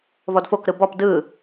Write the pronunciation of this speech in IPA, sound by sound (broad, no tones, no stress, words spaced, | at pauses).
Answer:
vɔdfokɾɯ bɔp dɯ